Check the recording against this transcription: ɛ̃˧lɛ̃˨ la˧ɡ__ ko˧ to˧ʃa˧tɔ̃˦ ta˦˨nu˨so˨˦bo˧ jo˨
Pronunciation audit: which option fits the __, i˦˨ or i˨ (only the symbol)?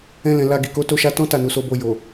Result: i˨